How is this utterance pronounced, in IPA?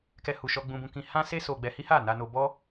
k ɛ˧ h u˨ ʃ ɔ˧ ɡ͡b ũ˧ b ũ˧ k ĩ˧ h ã˦ s e˦ s o˧ ɡ͡b ɛ˧ h i˦ h a˦˨ n a˧ n o˧ b ɔ˦

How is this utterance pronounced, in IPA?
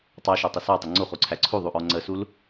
tˤ ɑ ʃ ɔ tˤ ə s ɑ tˤ ə ŋ͡ǀ u χ u ǀʰ æ ǀʰ u ðˤ u ʔ ɔ ŋ͡ǀ ə s u l

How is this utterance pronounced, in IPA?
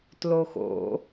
t l o x o̰

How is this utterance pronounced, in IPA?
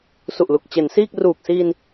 s u˨˩ ʔ l u˨˩ k̚ t͡ɕ e˩˦ n s iː˥˩ k̚ r uː˨˩ k̚ s iː˧ n

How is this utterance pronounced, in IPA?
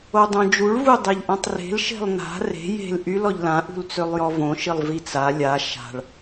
o dˤ õ d͡ʒ u ɭ v u dˤ e ʎ ʔ ã tˤ r e̤ l ʃ e̤ lˠ n a̤ r e̤ j e̤ l ʔ y l ɔ ʎ l ã ʔ ṳ l t͡s ø lˠ j ɔ v õ ʃ i lˠ v i t͡s a lʲ a ʃ a̤ ɭ

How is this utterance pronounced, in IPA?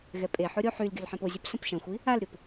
ɣ ɛ pʼ e ħ o ɾʲ o ħ y l ɡʲ ɵ l ħ ɛ̃ p o zʲ ɵ p s ə̃ p ʃ ɐ̃ xʷ i | a l ɾʲ o p

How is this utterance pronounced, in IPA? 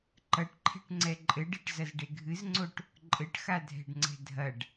ǃ ɐ ʈ ǃʰ e̤ ʈ ŋ͡ǀ ɛ ǃʼ ɘ ɖ e ʈ z ɐ z ɖ e ɡʱ ɨ z ŋ͡ǀ o ʈ | ǃʼ ɘ ʈ x a dʱ ɛ̤ ɖ ŋ͡ǀ ɛ̤ dʱ ɐ ɖ

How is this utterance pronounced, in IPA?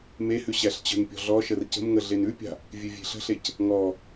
m e h ʉ ɕ æ ɬ t͡ɕ ə̤ n pʲ ɔ̤ ɮ ɔ ʃ ə r c ə̤ m ŋ ə ɮ e n ʉ pʲ a̤ | vʲ ʉ vʲ e̤ ɬ ə̤ ɬ e c | ŋ ɔ

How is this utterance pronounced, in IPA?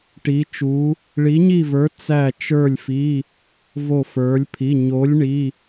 ʈ i˧˥ t͡ʃ u˧˥ | ɭ i˧˥ ɲ i˥˧ v ə˞˧˥ t͡s æ˥˧ t͡ʃ ə˞˥˧ lʲ f i˧˥˧ | v o˥˧ f ə˞˧˥ lʲ pʰ i˧˥˧ ɲ o˧˥ lʲ ɳ i˧˥˧

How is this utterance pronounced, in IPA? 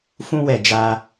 f ũ˧ w ɛ˨ d͡ʒ a˧

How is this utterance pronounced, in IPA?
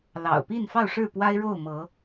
l ɑ̰˨˩ ʊ̯ p i˥˨ n f ɑ˥˨ ʊ̯ ʂ ɻ̩˥˨ p w a˦ ɪ̯ ɻ o˥˨ ʊ̯ m ɤ˨˦

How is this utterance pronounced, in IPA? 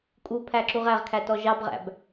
kʼ u pʰ æ ǁ u ʁ æ ʁ kʰ æ t ɔ ʒ ɑ b ʁ æ̰ b

